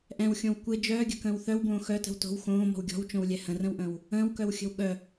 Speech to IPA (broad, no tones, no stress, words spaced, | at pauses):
ʔɛ̃wxʲõw kʷɪ d͡ʒœːɡʲə̤kə̃ːw θœwbõː xœtə̤w to̤w xõːmɔ̤w ɡʲɔ̤wt͡ʃõwlʲɛ hə̃rə̃wʔə̃ːw | ə̃ːwkœwxʲə̤w ɠœ